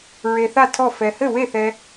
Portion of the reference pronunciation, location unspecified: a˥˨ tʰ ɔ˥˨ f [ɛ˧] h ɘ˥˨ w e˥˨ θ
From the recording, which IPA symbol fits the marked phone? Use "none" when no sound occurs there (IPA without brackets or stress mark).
ɛ˧